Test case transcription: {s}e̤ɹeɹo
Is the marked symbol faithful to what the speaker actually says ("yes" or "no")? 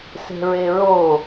yes